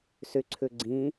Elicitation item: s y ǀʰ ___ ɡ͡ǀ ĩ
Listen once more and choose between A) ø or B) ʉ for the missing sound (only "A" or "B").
B